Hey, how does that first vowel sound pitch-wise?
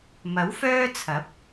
rising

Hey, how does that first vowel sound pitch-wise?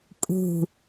low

